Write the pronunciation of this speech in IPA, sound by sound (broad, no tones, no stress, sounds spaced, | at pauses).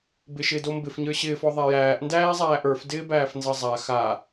b ɪ ʃ ɪː d o m b ɪ f ɲ ə˞ ɕ ɪː f ɔ ðˤ æ j æː ʔ n d æː zˤ æː ʔ ə˞ f d ɪː b æː f n z ʌ zˤ a x a